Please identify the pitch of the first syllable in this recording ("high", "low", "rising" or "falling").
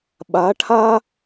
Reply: rising